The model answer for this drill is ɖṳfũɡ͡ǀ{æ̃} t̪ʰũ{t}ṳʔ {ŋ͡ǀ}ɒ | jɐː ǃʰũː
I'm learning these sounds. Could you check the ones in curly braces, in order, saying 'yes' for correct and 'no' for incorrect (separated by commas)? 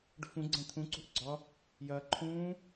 no, no, no